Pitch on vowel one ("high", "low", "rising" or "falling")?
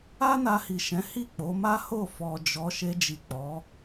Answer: high